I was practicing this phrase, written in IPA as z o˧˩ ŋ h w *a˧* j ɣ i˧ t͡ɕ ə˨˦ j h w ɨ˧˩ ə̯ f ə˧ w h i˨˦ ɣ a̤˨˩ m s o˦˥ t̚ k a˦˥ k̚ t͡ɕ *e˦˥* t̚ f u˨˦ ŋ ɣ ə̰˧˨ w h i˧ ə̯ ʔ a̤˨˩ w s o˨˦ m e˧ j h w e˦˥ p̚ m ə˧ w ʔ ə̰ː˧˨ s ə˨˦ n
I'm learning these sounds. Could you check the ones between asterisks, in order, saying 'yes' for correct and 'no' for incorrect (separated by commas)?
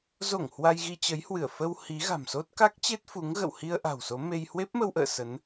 yes, yes